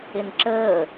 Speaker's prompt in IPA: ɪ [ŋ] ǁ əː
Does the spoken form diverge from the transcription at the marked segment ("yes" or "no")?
yes